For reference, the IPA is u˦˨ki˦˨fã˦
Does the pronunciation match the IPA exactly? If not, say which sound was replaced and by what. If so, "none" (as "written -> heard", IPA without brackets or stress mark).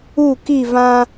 f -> v